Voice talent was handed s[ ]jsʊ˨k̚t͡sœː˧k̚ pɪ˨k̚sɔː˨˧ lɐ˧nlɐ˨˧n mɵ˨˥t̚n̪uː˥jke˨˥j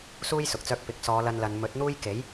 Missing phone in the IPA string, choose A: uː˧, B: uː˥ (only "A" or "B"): B